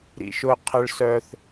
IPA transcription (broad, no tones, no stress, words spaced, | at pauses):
ɾḭʃʊ qʰəɭ sœθ